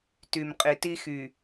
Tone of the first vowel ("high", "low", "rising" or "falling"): low